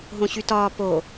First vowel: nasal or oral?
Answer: nasal